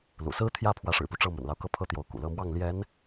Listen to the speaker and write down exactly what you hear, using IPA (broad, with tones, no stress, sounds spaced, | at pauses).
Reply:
l ṵ˨˩ s ɹ̩˥ t̪ʰ j ä˥˩ pʰ w ä˧˥ ʂ ɻ̩˨˩ p u˦ ʈ͡ʂ ɤ˥˩ m ə̰˨˩ n l ɑ˦ ʊ̯ k ɤ˥˩ pʰ ɤ˥ t̪ j o˧˥ ʊ̯ k ṵ˨˩ l ɤ˥˧ m w ɑ˥˩ ŋ l j ɛ˧˥ n